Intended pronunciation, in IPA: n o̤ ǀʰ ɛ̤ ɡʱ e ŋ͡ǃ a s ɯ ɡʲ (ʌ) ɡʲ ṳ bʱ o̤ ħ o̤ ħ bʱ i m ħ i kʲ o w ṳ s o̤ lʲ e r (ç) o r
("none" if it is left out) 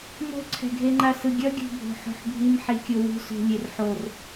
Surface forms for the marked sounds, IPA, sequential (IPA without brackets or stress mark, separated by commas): ʌ, ħ